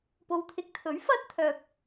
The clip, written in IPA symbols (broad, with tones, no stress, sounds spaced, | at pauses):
p o˨˧ w t̪ʰ ɪ˨˥ k̚ t̪ʰ ɵ˨˥ ɥ f ɐ˥ t̚ t̪ʰ œː˧ p̚